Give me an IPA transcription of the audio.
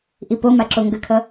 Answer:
ʔ i p o m a ǁ o ŋ ɡ ə kʰ ʌ

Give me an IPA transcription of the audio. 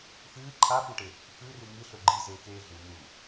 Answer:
f ɨː ǃʰ a f u ʈ e | f ʉ r ɨ ŋ ɨ ɬ ɵ ɡ͡ǃ i z eː k eː ɮ u n̪ u

